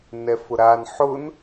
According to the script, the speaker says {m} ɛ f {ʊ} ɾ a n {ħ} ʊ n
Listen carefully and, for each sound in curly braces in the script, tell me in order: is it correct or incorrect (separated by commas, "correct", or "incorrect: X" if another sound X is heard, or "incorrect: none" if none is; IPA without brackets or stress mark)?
incorrect: n, correct, correct